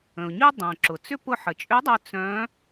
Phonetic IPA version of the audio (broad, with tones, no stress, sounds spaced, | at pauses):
ə̃˩ ʊ̯ ɲ y˥ dˤ œ̃˩ ǁ ʊ˩ t͡s ʏ˥ p ʊ˧ ħ ə˩ t͡ʃʼ ʏ˧˥ dˤ œ˧ t͡s œ̃˧˥